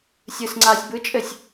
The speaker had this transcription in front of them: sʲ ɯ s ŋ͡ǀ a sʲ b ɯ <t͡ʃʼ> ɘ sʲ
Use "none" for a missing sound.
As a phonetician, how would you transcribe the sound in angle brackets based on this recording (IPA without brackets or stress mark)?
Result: t͡ʃʼ